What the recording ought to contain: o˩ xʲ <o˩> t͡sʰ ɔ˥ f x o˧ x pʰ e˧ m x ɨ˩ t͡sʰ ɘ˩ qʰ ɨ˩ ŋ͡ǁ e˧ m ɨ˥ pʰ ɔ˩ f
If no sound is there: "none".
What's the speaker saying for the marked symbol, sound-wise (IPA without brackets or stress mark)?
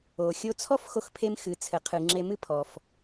o˧